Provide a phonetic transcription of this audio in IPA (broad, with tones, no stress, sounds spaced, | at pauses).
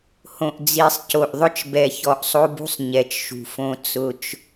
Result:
h õ˨ ʔ d͡z i˨ sˤ c o˨ ʔ ðˤ ʊ˦ t͡ʃ b ɛ˨ ç ɔ˨ ʔ sˤ o˦ b ṳ˦ sˤ ɲ ɛ˨ t͡ʃ ʃ ṳ˨ f õ˦ t͡s ʊ˦ t͡ʃ